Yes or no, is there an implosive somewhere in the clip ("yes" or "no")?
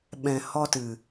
yes